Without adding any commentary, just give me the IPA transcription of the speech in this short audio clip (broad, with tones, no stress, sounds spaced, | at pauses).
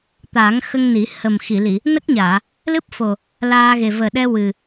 t̪ aː˨˩˦ ŋ x ə˧ ŋ n i˨˩˦ h ə˨˩ m x i˨˩˨ l i˨˩˨ | n ə˦˥ k̚ ɲ aː˨˩˨ | l ɨ˦˥ p̚ f o˨˩ | l aː˧ ɣ e˨˩ v əː˨˩ ɗ ɛ˧ w ɨ˨˩